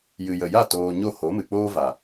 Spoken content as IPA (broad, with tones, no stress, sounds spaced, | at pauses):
j ɨ˨ j ə˨ j a˦˨ t oː˨ ɲ o˦˨ h o˨˦ m ɨ˨ k͡p oː˦ v a˨